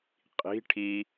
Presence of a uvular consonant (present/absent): present